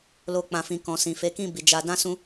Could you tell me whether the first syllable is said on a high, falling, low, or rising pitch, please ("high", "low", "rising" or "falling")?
high